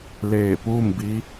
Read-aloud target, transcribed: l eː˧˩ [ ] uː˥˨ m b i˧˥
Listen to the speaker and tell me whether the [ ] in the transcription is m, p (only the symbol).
p